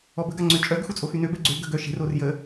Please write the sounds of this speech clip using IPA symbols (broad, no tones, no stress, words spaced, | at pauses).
ɔbə ɡaŋ͡ǀøt͡ʃʼœɡ xut͡sʼoxynø bɛɡ͡ǀø ɡə̤ɡœ ʃe̤r orjə